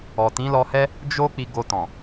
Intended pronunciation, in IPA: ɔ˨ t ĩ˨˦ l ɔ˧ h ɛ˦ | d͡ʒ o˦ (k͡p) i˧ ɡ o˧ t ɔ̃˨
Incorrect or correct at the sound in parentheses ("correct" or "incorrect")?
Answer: correct